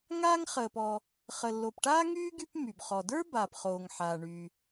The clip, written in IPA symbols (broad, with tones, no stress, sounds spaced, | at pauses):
ŋ aː˥ ŋ χ əː˩ p ɔ˩ | χ ə˩ lː o˩ p ʈ aː˥ ŋ yː˥ ɡ y˥ p m y˩ b χ ɔ˩ d ə˞˥ b aː˩ p χ oː˩ ŋ ħ aː˩ ɳ y˩